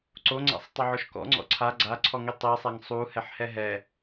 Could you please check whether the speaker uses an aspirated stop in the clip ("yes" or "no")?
yes